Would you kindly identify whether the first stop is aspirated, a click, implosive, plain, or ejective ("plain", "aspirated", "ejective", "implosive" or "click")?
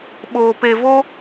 implosive